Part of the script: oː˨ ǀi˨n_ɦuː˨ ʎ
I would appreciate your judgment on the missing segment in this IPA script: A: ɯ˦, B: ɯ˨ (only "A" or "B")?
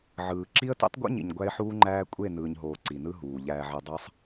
A